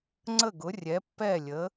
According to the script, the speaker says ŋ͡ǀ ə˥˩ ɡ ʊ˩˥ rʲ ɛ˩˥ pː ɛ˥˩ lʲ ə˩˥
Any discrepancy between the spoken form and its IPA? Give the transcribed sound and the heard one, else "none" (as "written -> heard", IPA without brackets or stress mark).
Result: none